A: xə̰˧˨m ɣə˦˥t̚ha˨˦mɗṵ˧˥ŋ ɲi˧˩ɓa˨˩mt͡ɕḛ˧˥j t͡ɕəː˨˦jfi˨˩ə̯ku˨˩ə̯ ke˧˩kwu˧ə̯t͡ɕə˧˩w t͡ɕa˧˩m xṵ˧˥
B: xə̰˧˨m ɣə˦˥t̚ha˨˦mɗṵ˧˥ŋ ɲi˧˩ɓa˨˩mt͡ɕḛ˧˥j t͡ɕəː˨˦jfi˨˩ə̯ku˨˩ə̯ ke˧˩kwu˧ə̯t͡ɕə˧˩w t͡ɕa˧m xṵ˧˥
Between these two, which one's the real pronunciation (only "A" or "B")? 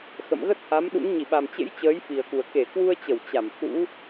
A